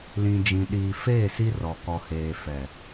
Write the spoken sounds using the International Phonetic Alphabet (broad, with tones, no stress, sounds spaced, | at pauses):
l ĩ˨ d͡ʒ ĩ˨ ɗ iː˨ f eː˦˨ s i˦ r ɔ˨ k ɔ˨ h eː˨ f ɛ˨